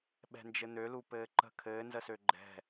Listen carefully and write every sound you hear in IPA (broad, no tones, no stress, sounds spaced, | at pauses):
ɓ ɛ̤ n d͡ʒ ɘ n̪ ø l u p ɘː ǃ ə̤ kʰ ɘː n z ə s ø ɡ͡ǃ ɛ̤